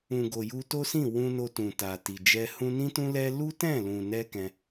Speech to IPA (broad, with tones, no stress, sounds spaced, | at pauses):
ũ˨ ɡ o˨ j u˧ t o˦ s ĩ˦˨ w ũ˧ n o˧ t ũ˨ t a˨ t i˨ d͡ʒ ɛ˧ h ũ˦ n ĩ˦ t ũ˦ l ɛ˦ l u˦ t ɛ̃˦˨ l ũ˨ n ɛ˧ k ɛ̃˧